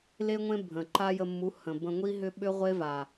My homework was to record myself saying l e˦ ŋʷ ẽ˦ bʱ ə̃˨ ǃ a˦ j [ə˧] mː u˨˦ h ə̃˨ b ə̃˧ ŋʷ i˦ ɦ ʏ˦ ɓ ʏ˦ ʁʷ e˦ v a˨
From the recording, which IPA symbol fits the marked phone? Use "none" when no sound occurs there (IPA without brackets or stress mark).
ə˧